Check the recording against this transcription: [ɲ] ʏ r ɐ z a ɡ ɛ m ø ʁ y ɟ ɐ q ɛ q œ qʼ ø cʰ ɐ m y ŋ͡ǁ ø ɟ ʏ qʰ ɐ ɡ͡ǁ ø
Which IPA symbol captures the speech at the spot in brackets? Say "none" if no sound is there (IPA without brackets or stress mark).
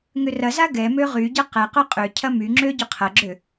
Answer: ŋ